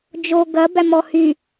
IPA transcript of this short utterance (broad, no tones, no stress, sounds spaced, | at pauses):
d͡ʒ o ɡ ɐ b æ m ɔ h y